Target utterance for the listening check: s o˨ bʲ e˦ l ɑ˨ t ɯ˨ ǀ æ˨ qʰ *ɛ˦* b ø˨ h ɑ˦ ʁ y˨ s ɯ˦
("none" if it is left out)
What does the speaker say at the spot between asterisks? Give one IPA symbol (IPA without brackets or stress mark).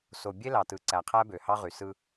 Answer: æ˦